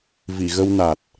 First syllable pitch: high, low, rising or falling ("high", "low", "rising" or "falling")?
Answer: low